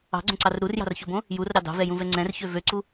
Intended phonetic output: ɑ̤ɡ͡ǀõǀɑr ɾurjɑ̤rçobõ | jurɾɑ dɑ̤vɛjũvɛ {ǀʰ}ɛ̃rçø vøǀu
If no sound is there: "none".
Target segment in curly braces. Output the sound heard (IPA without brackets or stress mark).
ŋ͡ǀ